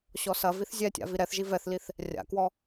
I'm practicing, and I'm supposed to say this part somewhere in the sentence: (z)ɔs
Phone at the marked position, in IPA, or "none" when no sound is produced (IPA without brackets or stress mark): ɕ